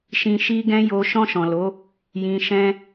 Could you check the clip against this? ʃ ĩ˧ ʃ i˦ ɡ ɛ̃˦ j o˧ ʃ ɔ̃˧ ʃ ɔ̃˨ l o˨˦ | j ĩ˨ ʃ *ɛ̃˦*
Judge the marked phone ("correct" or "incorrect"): incorrect